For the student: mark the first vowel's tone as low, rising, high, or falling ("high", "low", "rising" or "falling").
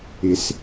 low